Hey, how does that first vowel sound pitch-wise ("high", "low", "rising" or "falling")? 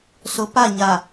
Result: rising